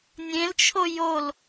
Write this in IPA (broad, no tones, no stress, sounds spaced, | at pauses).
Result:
nʲ ẽ l t͡ʃʰ o j o l